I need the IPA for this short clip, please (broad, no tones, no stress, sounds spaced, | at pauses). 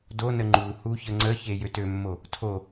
d o n ə ŋ͡ǃ u h u ç ə ŋ͡ǀ ə ç e j ø t ø mː o | tʰ o